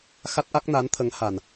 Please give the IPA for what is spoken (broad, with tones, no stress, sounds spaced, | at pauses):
x a˦˥ t̚ ʔ a˦˥ k̚ n a˧˥ n t̪ʰ ə˧˥ ŋ h a˨˩ n